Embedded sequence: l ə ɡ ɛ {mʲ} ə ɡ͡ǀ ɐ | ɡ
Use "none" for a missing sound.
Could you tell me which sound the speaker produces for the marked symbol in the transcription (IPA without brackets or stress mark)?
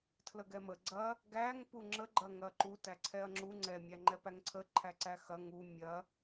m